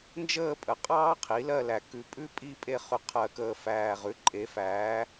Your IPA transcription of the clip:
nd͡ʒəː˦˨pʼə˩˥qʼɑː˦ qʰi˩˥lɜ˦˨læ˨˩ kʉ˨˩˦pʼʉ˦pʼi˦˨ pʼe˦˨χʉ˨˩ qʰɜ˨˩˦kəː˨˩fæː˨˩ʁʉ˩˥ ǃʼe˩˥fæː˩˥

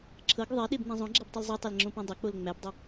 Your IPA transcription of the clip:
ǁʰɤɡ ðˤɛɗebnɛ̃ zˤõɡ͡ǁɛbtˤil zˤetˤɛlŋ͡ǁõpæ̃ dˤɐk͡pol ŋ͡mæbdˤɪ

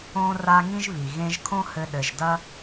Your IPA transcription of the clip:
õ˧ra˧ ŋĩ˥ʒβi˩ ɣẽ˧ʒkʰõ˥ hɘ˧ɗɘ˩ʒdɐ˥

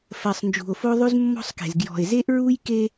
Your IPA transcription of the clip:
fɜ˨sˤnd͡ʒṳ˨o̯fo˦ ðˤʉ˦zmːɔ̤˦sˤke̤˨z ɡjɔ̤˨e̯ze˦ʔɹu˦jke˦

